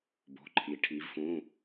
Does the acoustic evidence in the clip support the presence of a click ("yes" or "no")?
yes